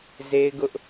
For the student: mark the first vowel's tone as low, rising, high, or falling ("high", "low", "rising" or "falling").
high